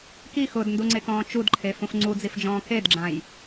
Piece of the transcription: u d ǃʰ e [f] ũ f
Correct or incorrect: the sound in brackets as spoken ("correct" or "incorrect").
correct